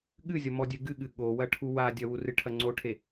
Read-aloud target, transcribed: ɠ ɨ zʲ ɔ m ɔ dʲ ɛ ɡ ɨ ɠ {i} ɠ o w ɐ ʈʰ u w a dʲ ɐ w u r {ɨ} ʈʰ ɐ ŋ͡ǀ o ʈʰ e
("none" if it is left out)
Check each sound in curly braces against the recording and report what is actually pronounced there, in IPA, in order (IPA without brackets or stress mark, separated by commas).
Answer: ɨ, ɨ